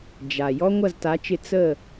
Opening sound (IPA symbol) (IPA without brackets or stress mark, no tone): d͡ʒ